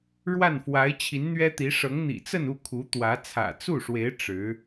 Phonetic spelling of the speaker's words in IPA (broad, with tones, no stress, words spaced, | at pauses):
ɻwa˥˩nfwa˧˥ɪ̯ t͡ɕʰi˧˥nn̪ɥɛ˥t̪i˧˥ ʂɤ˧˥ŋn̪ḭ˨˩ t͡sə˥˧nu˥˩ kʰu˧˥ t̪wä˧˥ t͡sʰä̰˨˩t͡su˥˩ʂwe˧˥ɪ̯ ʈ͡ʂɻ̩˧˥